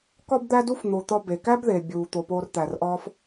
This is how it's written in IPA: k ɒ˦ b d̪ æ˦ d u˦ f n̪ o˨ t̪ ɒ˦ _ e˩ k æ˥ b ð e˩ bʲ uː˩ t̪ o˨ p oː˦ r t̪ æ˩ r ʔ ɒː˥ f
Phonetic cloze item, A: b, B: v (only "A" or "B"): A